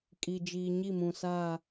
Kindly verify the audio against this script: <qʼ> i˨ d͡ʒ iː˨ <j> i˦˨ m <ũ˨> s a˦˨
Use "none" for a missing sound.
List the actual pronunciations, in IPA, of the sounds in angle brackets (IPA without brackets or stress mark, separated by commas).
kʼ, ɲ, ũ˨